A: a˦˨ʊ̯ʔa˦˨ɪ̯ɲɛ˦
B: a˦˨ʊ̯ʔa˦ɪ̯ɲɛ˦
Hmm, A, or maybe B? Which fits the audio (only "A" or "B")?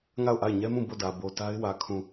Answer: A